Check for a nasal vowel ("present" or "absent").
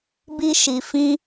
present